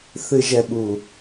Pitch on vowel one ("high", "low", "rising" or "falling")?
low